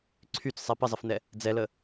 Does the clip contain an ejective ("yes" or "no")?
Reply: no